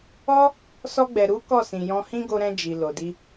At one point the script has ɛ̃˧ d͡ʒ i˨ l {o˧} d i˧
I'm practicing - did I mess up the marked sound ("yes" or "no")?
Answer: yes